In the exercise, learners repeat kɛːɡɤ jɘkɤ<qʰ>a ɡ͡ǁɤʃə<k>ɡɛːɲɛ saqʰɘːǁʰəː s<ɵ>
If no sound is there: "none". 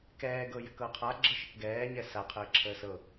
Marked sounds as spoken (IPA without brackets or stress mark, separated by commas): qʰ, k, ɤ